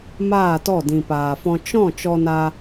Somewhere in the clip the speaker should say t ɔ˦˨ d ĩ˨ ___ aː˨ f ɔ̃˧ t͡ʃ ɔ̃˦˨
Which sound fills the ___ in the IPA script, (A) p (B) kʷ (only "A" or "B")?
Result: A